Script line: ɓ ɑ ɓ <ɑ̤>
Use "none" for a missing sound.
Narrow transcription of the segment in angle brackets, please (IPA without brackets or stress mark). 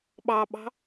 ɑ̤